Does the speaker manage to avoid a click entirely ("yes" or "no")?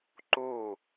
no